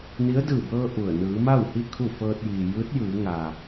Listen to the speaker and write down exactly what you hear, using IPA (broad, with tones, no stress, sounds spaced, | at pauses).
n i˧˥ ə̯ d ɯː˧˩ b ɤː˧ ʔ u˧˩ ə̯ n ɯː˩˧ m a˥˨ w h i˥˨ kʰ u˥˨ f ɤː˧ t̚ j iː˩ j ɯː˧˥ t̚ j ɯː˩˧ ŋ aː˩